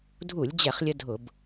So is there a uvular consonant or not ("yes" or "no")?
yes